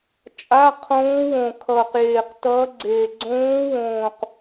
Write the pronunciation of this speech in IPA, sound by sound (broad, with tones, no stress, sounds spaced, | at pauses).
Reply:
t͡ʃʼ a˧˥˧ qʰ õː˧˥ w õ˨˩ kʰ ʌː˨˩ q j eː˨˩ q t ʌː˧˥ ɡ͡ǀ eː˨˩ ɡ͡ǀ õː˧˥ w õː˨˩ q